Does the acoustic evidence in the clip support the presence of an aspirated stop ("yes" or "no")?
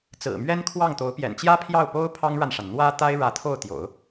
yes